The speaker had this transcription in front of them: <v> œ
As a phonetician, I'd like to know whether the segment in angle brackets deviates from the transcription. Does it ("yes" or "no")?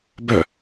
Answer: yes